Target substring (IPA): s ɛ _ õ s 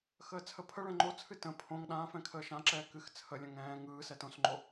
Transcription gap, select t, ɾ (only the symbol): t